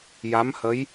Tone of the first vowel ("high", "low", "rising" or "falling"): rising